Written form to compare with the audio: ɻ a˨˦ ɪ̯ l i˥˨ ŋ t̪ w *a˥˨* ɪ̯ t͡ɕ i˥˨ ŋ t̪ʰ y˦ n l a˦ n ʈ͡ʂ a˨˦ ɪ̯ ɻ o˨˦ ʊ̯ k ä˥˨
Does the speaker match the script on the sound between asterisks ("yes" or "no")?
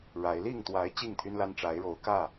no